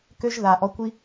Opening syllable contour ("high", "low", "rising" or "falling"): high